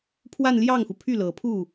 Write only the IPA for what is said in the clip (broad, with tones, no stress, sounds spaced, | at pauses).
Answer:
pʰ w a˥˧ n l j ɑ˥˩ ŋ x u˩ pʰ y˥˩ l ɤ˨˩ pʰ u˥˩